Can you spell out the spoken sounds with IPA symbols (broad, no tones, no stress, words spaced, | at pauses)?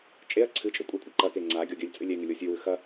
t͡ʃʼeɐ̯ ǀʰɨt͡ʃʼɵ kʷʼɐkʷʼɐ ǃɐke ŋ͡ǀa ɡʲoɡʲɵlʲt͡sʼɨ lʲeŋɨ lʲosʲʉwʉ xɐ